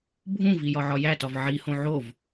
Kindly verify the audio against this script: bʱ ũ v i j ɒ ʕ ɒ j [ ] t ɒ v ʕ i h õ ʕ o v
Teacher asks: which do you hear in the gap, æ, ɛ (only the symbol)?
æ